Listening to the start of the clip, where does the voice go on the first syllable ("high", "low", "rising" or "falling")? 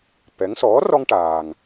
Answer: rising